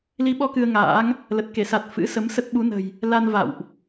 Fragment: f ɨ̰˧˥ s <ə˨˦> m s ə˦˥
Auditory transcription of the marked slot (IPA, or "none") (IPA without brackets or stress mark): ə˨˦